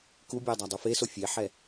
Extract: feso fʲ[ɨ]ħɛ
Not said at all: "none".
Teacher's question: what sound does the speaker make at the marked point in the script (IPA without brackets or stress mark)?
e